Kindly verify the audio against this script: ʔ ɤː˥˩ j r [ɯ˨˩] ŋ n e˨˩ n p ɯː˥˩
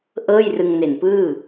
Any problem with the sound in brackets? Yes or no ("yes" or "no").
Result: yes